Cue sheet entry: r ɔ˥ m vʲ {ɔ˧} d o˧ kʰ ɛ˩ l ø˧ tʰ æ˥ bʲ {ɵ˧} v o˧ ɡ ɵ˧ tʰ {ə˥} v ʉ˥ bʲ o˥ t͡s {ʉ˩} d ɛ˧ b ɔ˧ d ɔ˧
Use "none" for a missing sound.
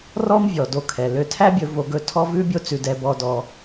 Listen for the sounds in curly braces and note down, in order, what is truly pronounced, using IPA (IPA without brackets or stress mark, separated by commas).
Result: ɔ˩, ɵ˧, ɔ˥, ʉ˧